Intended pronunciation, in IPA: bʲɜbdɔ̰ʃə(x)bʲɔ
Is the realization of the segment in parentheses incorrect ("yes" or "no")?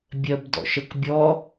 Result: yes